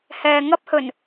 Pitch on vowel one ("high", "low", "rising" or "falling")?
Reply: low